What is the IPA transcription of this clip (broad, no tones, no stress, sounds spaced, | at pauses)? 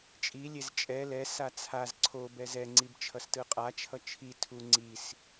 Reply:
t͡ʃʼ i lʲ e z t͡ʃʼ ɛ l ɛ s a t͡sʰ a z ǀʰ o b ɛ z ɛ ŋ͡ǀ i b t͡ʃʰ ʌ s t ɯ qʼ a t͡ʃʰ ʌ t͡ʃʰ i tʰ u ŋ͡ǀ i s